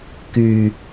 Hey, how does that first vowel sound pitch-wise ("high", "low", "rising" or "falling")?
low